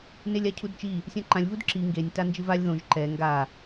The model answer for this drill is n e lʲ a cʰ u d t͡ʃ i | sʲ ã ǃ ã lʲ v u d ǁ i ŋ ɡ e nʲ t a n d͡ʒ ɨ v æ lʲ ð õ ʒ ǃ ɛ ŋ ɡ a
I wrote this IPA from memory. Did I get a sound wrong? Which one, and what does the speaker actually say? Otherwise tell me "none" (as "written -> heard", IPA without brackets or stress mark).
æ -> a